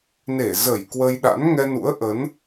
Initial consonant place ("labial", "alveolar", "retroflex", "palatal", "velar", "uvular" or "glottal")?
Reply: alveolar